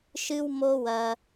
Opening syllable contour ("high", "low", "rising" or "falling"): high